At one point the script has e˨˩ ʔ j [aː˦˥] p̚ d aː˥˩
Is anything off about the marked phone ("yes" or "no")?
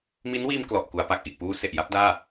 yes